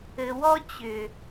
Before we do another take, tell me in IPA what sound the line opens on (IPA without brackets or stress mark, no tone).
ɘ